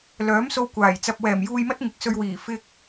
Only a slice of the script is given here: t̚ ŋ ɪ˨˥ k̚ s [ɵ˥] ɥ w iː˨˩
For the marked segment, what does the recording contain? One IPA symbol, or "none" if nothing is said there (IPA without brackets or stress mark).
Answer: ɵ˧